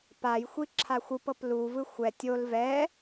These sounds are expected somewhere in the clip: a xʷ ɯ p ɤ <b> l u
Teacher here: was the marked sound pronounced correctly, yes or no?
no